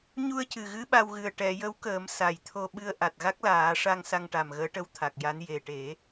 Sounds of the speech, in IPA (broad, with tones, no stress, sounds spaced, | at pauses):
ɲ u˧ ə̯ c ɨ˨˩ ɣ ɨ˧˥ ɓ a˧ w ɣ ɨ˨˩ ə̯ ʈ ɛ˨˩˨ j ə˧˥ w k əː˨˩˦ m s a˨˩ j t̪ʰ o˧ ɓ ɨ˧ ə̯ ʔ a˨˩ t̚ ɣ a˦˥ k̚ l aː˨˩˦ ʂ a˧ ŋ s a˧ ŋ ʈ a˨˩ m ɣ əː˧˥ ʈ ə˧˥ w t̪ʰ a˨˩ k̚ j a˧˥ n j e˨˩ ʈ e˨˩˦